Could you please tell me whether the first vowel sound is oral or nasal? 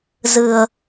oral